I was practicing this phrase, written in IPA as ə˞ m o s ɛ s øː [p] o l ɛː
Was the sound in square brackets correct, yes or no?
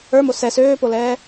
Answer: yes